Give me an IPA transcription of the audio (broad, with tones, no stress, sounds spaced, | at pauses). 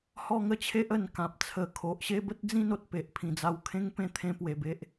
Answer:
h ɔ˥˧ ŋ ə˥˧ t͡ɕʰ e˦ ʔ ə˨˩ n k ã˨ p̚ t͡sʰ ə˨˩ kʰ o˨ ʔ ɕ e˥˧ b ə˦ t̚ d͡z ĩ˥˧ n o˨ t̚ p e˨ ʔ pʰ ĩ˨˩ d͡z a˧ w kʰ ẽ˦ ŋ p ẽ˥˧ t̪ʰ ẽ˧ p w e˨˩ b e˦ ʔ